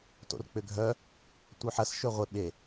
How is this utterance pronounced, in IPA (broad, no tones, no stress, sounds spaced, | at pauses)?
t o̰ r k͡p ʏ ɡʱ œ | tʷ œ ħ ɐ s ʃ ø ʁʷ ɪ ɓ e